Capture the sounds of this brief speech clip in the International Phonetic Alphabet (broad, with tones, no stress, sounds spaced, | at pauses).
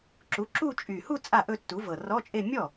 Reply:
ǁ u˩˥ ǁ u˥˧ t͡ʃʼ y˨˩ h u˥˧ t͡sʼ a˥˩ ʔ ɵ˥˧ tː u˩˥ v ɤ˨˩ r ɔ˧˥˧ t͡ʃʼ e˥˧ mʲ ɔ˥˩